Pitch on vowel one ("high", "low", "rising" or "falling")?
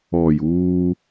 low